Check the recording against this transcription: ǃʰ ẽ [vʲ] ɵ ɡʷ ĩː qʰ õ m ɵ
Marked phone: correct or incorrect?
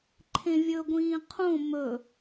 correct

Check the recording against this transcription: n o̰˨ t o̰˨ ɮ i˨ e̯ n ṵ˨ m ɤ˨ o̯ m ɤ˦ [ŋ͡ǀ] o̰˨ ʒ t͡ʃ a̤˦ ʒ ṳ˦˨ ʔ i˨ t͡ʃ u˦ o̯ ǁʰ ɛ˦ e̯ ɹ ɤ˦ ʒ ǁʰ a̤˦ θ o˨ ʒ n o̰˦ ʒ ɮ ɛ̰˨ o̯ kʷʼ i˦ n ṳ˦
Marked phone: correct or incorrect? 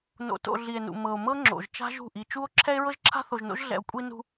incorrect: ŋ͡ǁ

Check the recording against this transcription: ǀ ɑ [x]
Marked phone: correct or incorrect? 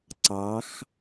correct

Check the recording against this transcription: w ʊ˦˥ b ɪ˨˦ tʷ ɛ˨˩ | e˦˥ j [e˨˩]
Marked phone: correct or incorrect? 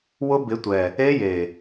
correct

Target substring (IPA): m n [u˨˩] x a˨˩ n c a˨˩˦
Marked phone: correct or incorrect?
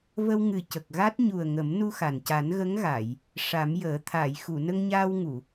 incorrect: u˧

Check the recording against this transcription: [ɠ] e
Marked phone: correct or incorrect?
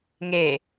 incorrect: ŋ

